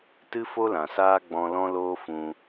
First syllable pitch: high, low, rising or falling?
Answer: high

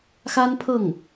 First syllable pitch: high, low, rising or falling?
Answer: high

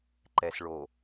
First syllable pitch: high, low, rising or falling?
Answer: low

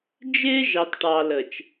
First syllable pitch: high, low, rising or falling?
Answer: high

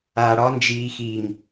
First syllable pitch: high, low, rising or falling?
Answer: low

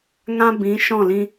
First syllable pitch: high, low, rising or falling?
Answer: high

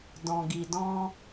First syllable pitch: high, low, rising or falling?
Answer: low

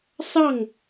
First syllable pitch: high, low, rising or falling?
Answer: falling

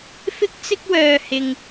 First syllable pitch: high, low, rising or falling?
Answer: high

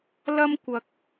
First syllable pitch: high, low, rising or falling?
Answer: high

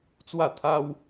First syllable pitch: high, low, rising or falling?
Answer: falling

